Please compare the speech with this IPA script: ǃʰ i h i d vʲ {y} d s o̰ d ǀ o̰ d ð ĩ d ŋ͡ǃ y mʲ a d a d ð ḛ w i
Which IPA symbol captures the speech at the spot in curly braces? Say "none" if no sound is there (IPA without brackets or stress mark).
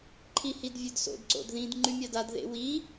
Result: ø